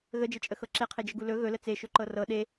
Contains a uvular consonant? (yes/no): yes